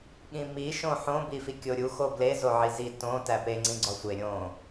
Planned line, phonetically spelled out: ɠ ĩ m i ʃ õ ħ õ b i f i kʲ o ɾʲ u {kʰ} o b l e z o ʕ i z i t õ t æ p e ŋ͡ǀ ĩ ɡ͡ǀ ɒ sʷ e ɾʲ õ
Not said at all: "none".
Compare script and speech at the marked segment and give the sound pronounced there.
x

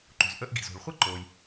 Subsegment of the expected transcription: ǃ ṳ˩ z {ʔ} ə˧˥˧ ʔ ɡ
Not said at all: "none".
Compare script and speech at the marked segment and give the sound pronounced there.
ʔ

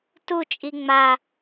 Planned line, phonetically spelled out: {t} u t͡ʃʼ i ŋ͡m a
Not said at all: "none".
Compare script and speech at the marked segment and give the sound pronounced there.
t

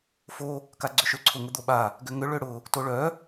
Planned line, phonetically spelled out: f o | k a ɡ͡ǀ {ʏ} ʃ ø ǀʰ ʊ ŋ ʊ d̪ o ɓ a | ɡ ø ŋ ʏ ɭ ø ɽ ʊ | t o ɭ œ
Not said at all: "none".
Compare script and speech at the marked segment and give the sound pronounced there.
ʏ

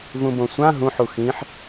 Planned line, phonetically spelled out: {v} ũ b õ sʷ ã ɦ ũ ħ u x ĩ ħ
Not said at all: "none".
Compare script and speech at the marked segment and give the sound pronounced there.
v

